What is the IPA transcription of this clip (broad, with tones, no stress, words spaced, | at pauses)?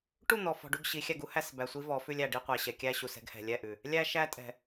ʈu˦˨n̪ɔ˨ fɔ̤˨ɖu˦˨ɡ ɕi˨˦ xʲæ˧ɡu˦hæ˧sbæ˨ sʷi˦vɔ˨˦ fʉ˧lʲæ˨ ɖi˧qʷæ˨ɕɛ˨ kʲæ˧ɕu˨sɛ̤˧ɡ hɛ̤˨lʲɛ˦˨ʔʉ˨ | lʲæ˧ʃæ˧tʼɛ̤˨